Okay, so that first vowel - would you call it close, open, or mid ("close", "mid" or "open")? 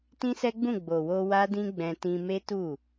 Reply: close